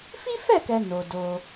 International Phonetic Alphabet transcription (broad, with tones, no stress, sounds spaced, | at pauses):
f i˦ f ɛ˦˨ k ɛ˨ n o˨ d o˧